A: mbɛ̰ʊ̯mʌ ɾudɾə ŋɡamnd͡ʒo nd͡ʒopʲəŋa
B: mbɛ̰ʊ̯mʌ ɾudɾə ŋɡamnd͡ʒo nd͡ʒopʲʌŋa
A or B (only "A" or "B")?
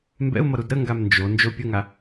A